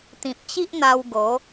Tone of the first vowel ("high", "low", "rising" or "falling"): low